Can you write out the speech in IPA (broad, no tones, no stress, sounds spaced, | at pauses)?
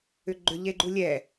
ʏ ɡ͡ǃ ʏ ʎ e ɡ͡ǃ u lʲ ɛ